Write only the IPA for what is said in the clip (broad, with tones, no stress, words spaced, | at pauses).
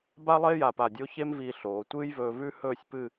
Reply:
ba˥lˠe˥ ja˧˩pa˧˩dʲo˥ çe˥mviː˧ ɬoː˩˧ tʷɨː˥jvɵː˧vʉ˥ hɵː˥˧sʲpɨ˥˧